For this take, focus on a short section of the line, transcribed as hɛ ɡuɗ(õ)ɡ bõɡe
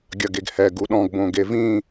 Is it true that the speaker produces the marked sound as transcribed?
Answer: no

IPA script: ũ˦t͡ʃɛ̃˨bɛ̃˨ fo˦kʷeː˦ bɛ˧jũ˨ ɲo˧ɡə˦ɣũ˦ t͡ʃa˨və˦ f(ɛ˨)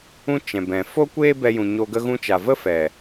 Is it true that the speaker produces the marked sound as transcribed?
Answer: yes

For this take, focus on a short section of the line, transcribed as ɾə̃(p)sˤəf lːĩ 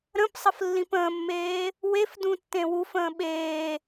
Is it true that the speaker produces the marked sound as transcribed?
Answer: yes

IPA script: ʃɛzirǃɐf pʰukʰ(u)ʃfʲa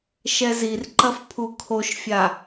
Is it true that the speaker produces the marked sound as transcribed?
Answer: no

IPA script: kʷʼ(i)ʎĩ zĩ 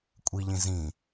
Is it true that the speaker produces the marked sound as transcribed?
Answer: yes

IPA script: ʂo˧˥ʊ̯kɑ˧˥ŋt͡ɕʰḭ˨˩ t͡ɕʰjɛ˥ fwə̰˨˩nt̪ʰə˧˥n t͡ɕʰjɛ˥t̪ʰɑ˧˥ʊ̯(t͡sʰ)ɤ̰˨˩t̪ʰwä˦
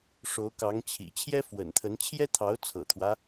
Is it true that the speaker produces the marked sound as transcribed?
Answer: yes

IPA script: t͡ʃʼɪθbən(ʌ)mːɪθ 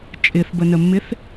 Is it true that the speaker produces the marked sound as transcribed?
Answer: no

